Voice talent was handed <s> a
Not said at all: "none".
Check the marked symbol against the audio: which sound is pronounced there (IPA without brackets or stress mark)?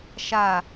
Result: ʃ